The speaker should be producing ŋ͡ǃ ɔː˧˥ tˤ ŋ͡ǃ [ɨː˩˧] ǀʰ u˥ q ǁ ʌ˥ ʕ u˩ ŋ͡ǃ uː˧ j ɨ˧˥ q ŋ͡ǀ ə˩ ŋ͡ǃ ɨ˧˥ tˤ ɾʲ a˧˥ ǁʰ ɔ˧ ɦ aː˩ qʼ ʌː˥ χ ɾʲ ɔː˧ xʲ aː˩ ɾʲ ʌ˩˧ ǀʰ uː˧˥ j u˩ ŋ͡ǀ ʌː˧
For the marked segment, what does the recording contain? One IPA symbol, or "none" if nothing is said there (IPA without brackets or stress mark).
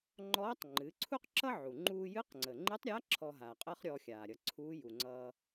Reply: ɨː˩˧